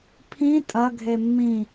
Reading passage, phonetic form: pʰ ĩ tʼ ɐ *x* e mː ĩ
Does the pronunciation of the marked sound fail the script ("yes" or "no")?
yes